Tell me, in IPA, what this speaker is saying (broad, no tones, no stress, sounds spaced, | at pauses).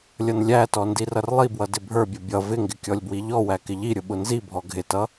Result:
lʲ ʌ n lʲ æ t ɔ n d i r ʌ r lˠ i b w ʌ d ɪ bʱ ə˞ bʲ ʌ bʲ ʌ v ɪ ŋ ɡ ɪ kʲ ɔ lʲ b w i ʎ ɔ w æ k ɪ ʎ i ɾʲ ʊ ɓ ʊ n z i bʱ ɔ ɡʱ ɪ t ʌ